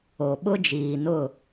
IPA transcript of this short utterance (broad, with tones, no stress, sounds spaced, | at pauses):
o˨ ɓ ʊ˦ d͡ʒ iː˨ n ʊ˦˨